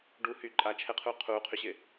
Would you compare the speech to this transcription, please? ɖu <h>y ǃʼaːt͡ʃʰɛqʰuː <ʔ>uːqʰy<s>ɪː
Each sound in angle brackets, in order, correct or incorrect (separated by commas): correct, incorrect, incorrect